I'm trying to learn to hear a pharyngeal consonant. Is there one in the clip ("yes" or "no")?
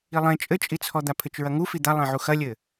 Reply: yes